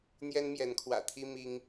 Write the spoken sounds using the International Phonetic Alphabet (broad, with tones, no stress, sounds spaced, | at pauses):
n̪ j ɛ˦ n m j ɛ˨˦ n kʰ w ä̰˨˩ t̪ʰ i˦ m i˦ ŋ